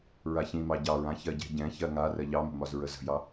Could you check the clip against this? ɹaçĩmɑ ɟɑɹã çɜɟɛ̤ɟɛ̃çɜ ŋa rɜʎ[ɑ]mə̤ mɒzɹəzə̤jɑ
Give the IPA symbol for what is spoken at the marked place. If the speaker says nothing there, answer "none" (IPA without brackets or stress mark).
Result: ɑ